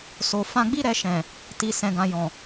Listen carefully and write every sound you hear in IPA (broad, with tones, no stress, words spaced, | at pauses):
so˨ fã˧ɡ͡bi˦ ɾɛ˧ʃɛ̃˨ | ti˨ sɛ̃˨ɡã˨ jɔ̃˨